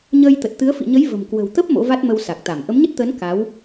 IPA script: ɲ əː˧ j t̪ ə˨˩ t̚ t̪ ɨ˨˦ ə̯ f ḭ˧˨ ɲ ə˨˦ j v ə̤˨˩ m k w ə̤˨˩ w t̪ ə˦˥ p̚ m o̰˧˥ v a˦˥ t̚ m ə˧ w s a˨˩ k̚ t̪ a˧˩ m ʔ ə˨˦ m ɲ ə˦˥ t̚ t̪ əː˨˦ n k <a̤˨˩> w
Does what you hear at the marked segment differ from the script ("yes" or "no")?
yes